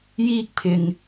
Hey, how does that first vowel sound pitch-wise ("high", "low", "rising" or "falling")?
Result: high